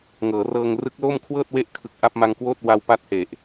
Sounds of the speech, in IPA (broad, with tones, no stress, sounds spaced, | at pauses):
ŋ ɤː˩˦ r ɤː˧ ŋ r ɯ˦˥ k̚ l o˥˩ m kʰ w ɤː˥˩ t̚ w e˦˥ ʔ kʰ ɯ˨˩ k̚ ʔ a˥˩ p̚ m a˧ ŋ k w oː˥˩ t̚ w a˧ w p a˦˥ t̚ h e˨˩ ʔ